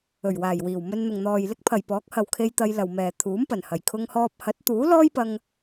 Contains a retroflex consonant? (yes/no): no